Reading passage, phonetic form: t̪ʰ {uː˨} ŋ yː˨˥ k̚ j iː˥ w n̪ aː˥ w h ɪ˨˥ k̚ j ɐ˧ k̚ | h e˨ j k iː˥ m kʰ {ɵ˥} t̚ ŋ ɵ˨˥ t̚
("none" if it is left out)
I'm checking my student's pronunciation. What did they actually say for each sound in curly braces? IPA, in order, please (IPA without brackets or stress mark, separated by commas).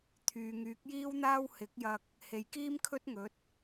yː˨, ɵ˥